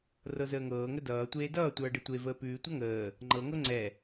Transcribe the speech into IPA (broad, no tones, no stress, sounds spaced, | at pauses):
r ɤ z əː ŋ ɤː ŋ ə d ʌː tʷ eː d ʌː tʷ ʌː ɖ ə tʷ e v əː p ʉː tʷ ʌ ŋ əː | ŋ͡ǃ ɤ ŋ ɤ ŋ͡ǀ ɛ